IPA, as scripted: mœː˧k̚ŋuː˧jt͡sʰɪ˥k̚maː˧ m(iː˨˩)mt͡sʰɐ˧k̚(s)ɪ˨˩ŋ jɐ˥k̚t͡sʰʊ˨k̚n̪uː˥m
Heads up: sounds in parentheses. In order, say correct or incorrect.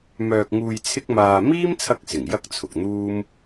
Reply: incorrect: iː˥, correct

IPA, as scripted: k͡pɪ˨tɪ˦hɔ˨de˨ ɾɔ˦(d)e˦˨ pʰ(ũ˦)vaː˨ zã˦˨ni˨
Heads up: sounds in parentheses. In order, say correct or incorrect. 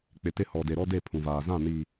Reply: correct, incorrect: ũ˨

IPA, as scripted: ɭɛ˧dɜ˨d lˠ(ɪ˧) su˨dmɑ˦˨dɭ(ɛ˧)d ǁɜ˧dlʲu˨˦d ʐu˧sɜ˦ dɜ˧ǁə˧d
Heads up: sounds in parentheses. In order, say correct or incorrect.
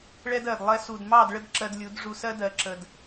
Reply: incorrect: ɛ˧, incorrect: ə˧

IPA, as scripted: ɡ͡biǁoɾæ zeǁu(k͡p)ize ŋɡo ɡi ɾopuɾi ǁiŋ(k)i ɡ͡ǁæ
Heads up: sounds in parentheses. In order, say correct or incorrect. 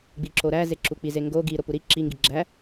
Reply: correct, incorrect: ɡ

